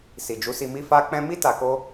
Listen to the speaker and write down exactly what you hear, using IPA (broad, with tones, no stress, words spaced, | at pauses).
si˨d͡ʒu˨˦si˧mi˦ fa˦k͡pɛ̃˦ mi˦ ta˧ko˦